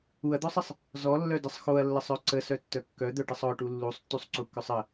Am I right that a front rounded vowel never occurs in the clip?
no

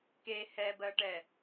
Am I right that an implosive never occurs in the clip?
yes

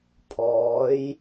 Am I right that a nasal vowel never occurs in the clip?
yes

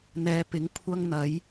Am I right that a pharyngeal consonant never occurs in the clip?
yes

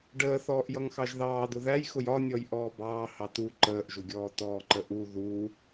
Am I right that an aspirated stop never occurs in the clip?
yes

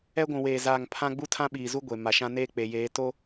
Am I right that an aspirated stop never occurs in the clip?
no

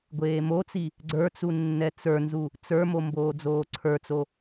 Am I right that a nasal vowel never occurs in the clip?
yes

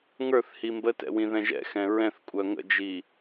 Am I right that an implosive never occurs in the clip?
yes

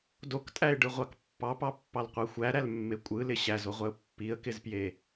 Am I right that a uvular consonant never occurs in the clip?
no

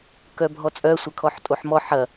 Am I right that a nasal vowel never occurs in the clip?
yes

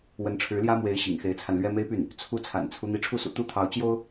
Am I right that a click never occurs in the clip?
yes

